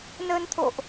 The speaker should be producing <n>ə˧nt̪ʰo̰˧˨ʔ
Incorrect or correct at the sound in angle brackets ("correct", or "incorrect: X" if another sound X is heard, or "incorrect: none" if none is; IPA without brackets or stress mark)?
correct